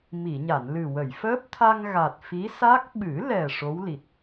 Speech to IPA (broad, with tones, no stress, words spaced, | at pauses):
mi˨˩˨ɲa˨˩˨nlɨ˨˩ wə˨˩˨jfəː˦˥p̚ t̪ʰa˧ŋɣa˨˩t̚ fi˧˥ sa˦˥k̚ ɓɨ˨˩˦lɛ˨˩ ʂo˧˥wli˨˩t̚